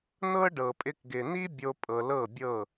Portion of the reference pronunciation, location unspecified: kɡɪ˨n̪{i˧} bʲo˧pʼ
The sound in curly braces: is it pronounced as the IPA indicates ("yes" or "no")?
no